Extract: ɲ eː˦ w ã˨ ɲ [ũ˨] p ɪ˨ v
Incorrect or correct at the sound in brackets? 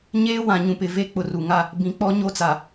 correct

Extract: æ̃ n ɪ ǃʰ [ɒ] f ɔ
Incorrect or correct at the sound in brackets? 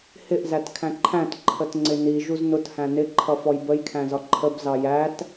incorrect: ʌ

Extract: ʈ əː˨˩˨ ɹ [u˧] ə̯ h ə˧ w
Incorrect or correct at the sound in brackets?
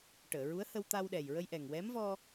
incorrect: u˧˥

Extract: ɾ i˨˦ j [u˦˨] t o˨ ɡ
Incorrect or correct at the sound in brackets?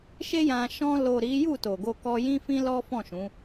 correct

